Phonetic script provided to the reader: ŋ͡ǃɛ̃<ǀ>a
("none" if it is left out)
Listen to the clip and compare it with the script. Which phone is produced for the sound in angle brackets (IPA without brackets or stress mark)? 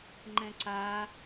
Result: ǀ